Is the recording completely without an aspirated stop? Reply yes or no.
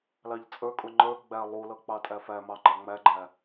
yes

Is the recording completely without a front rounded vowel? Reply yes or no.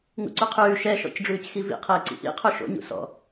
yes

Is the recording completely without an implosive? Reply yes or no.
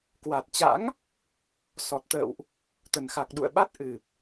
no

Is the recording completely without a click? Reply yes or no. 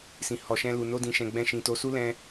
yes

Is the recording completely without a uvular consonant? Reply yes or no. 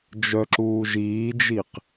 no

